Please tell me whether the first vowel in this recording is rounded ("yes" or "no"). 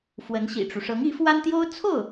no